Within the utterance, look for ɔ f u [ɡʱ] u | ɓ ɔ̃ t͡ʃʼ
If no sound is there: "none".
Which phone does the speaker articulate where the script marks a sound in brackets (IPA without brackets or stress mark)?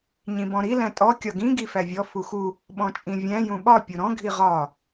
x